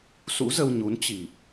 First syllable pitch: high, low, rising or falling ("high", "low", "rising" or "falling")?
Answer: rising